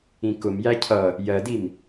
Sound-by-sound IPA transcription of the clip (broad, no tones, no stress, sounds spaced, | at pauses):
ĩ k ʊ m j æ cʰ ʌ | j ɜ d i m